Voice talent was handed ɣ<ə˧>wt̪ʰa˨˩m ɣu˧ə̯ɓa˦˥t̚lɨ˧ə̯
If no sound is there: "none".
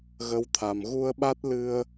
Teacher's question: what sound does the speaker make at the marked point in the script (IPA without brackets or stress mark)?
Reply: ə˧˥